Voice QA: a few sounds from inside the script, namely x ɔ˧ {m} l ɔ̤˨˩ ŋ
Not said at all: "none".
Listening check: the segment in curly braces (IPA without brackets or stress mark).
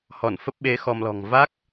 m